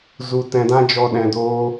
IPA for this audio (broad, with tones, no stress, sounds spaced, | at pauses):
z u˨ t ɛ̃˨ d ã˧ d͡ʒ ɔ˨ ɗ ɛ̃˨ d oː˧